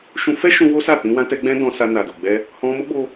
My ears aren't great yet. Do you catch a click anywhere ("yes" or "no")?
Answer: no